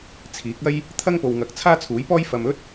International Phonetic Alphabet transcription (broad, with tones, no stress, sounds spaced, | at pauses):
t͡sʰ iː˨˥ k̚ ɐ˥ j | t̪ʰ ɐ˥ ŋ p o˨ w ŋ ɐ˨˥ k̚ t͡sʰ aː˥ t͡sʰ uː˨˥ j p ɔː˥ j f ɐ˨ m ɵ˥ t̚